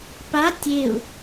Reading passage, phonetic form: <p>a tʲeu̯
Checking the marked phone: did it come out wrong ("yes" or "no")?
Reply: no